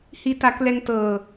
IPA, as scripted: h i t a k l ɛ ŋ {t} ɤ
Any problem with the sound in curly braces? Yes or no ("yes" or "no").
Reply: no